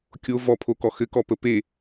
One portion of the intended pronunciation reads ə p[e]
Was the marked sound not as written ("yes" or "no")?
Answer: no